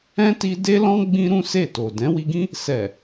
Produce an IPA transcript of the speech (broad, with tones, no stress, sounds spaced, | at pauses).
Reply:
ɛ̃˦ t i˧ d e˦ l ɔ̃˦ ɡ͡b ĩ˧ ɾ ũ˦ s e˦˨ t o˨ d ɛ̃˨˦ w i˧ ɡ ĩ˦ | s ɛ˨